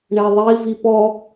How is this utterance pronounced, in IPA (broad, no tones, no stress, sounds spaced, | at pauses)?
ɳ ɛ ðˤ i v i p ɔ